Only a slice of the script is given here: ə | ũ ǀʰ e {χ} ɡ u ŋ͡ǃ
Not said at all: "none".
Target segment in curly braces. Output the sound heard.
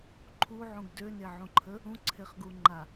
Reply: χ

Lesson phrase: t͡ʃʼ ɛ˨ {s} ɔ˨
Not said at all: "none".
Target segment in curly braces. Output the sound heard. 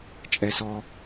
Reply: s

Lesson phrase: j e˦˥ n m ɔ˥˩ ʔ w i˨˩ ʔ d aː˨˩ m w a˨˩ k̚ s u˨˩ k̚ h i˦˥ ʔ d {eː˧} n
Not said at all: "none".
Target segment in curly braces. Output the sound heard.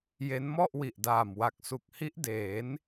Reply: eː˩˦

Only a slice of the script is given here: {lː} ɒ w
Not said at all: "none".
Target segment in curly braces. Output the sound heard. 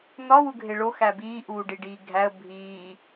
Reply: n̪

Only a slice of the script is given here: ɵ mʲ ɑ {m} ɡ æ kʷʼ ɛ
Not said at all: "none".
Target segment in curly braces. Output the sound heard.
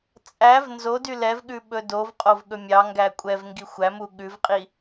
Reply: ŋ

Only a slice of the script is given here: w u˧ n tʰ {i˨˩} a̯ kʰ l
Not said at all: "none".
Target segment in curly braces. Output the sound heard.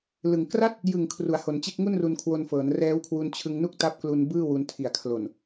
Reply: i˨˩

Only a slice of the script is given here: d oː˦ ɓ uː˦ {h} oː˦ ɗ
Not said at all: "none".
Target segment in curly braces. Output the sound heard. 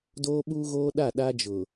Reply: ɣ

